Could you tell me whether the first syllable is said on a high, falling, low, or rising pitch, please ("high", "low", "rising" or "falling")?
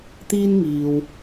high